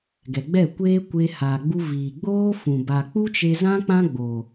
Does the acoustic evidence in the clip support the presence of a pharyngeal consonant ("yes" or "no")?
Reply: no